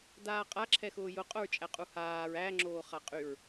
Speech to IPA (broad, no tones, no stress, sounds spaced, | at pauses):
d aː qʼ a ǁʰ ɛ x ʊː j ʊ qʼ ʊ ɹ t͡ʃʼ æ qʼ u h aː ɹ æ ŋ͡ǁ oː χ a qʼ y ɹ